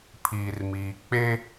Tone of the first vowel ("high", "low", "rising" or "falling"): low